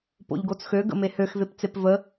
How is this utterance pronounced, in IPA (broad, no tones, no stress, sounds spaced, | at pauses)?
p o̰ ʎ ɡ o t͡s x ø ɡ ə̰ m e h ø x v e p t͡s e p v ə